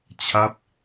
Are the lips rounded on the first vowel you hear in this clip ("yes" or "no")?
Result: no